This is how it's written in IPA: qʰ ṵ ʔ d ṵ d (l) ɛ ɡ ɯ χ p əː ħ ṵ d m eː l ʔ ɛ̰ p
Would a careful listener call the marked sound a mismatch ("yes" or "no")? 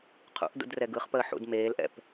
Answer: yes